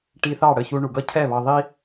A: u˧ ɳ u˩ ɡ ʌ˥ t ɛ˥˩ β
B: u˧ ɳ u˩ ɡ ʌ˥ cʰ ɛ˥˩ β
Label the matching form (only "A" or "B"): B